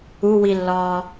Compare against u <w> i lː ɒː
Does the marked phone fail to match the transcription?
no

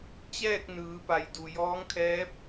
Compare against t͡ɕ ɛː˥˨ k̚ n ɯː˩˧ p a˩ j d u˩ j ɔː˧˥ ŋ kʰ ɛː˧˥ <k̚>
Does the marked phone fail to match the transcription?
yes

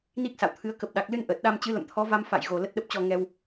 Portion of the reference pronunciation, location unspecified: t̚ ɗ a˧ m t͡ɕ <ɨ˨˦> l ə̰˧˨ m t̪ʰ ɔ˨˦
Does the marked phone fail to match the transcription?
no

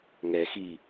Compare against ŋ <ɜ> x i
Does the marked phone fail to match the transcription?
yes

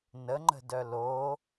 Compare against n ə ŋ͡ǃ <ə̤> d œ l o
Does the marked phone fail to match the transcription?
no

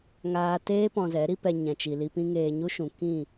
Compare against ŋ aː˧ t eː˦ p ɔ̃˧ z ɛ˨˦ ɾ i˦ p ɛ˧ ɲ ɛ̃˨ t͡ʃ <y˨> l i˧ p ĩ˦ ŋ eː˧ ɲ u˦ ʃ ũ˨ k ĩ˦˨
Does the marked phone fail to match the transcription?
yes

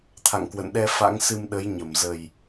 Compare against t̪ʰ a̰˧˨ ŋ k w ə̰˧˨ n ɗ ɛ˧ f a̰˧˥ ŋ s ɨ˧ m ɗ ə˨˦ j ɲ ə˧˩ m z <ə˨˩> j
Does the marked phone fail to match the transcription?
no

